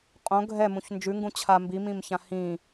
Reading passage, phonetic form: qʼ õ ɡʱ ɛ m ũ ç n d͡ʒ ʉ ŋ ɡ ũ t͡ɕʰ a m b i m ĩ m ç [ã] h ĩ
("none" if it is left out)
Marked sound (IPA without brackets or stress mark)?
ã